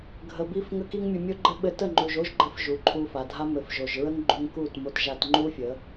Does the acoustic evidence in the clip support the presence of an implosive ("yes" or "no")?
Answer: yes